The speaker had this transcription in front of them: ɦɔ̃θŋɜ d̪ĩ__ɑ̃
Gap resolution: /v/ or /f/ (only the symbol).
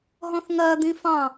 f